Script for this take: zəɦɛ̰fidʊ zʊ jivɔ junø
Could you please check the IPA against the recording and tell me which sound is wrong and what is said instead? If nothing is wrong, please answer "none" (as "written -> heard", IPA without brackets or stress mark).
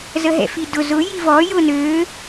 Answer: u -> ʊ